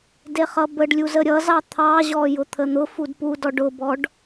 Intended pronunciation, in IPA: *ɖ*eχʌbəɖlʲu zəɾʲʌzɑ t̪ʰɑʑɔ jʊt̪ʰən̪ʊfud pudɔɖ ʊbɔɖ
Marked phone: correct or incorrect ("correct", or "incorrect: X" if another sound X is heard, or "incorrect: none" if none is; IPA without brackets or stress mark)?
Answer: incorrect: d